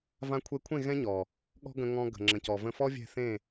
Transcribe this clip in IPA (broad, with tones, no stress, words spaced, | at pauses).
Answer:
vã˧kʷʰe˧kʷʰẽ˦˨ ɣɛ̃˦ɲɔ˨ | ɠɔ̤˦ɡə̃˧ ŋɔ̃˧ɡə̤˨ŋ͡ǁə̃˨cɔ˨ və̃˧fɔ˦vʲɛ̤˦˨θẽ˦˨